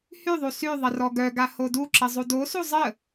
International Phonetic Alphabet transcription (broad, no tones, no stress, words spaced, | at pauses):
hyðˤu sy ðˤərɔɡœɡa hoduǁə zˤudosu zˤə